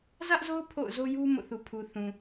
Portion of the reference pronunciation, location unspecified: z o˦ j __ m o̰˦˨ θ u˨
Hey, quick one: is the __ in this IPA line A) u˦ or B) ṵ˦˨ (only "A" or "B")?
A